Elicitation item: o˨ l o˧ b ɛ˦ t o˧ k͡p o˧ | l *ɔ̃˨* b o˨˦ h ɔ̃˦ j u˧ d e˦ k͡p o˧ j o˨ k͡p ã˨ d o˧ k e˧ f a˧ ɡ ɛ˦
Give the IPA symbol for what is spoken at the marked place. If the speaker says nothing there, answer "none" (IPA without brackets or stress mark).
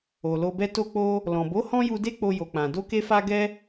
ɔ̃˨